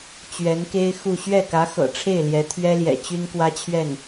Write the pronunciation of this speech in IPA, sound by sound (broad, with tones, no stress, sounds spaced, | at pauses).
t͡ɕ ɥ ɛ˧˥ n k e˥ ɪ̯ x u˥˧ ɕ ɥ ɛ˥˩ k ä˧˥ x ɤ̰˨˩ ʈ͡ʂʰ e˥˩ ɪ̯ l j ɛ˧˥ t̪ʰ ɥ ɛ˥ l j ɛ̰˨˩ t͡ɕ y˥ n k w ä˥ t͡ɕʰ ɥ ɛ˥˩ n